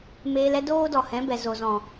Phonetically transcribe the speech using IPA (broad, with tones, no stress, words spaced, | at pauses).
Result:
meː˧lɛ˦ doː˦dɔ˨hɛ̃˨˦ bɛ˨zo˨zɔ̃˨